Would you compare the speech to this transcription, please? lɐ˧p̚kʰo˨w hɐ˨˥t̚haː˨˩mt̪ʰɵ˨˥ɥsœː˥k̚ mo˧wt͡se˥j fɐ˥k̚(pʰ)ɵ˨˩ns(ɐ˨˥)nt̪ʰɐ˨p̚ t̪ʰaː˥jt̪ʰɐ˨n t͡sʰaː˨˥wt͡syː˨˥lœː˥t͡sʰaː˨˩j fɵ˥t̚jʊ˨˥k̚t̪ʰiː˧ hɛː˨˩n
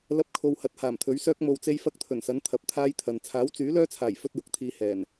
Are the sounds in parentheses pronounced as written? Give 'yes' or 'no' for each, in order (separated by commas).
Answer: no, yes